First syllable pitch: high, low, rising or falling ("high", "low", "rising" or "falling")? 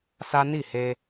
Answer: high